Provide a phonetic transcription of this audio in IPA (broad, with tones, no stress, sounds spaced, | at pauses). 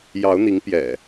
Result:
j ɑ˨˦ ʊ̯ n̪ i˨˦ ŋ p j ɛ̰˨˩